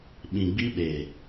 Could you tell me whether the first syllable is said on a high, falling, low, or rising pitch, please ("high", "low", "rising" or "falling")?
low